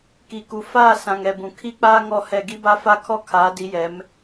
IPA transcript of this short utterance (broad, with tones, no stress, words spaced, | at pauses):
ki˨ku˨ faː˦˨ sã˨ŋɛ˨bũ˨ kʰi˦k͡paː˦ ŋɔ˦˨hɛ˦˨ ɡi˦ba˦fa˦kʰɔ˦ kʰaː˨˦di˨˦jɛ˨˦m